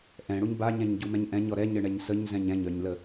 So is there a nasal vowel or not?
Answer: yes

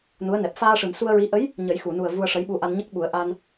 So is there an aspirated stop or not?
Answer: no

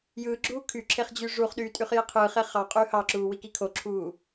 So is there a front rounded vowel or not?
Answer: yes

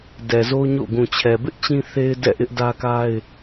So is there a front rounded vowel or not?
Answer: no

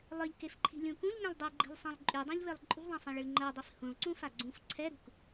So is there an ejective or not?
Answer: yes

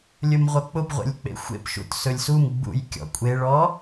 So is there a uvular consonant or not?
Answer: yes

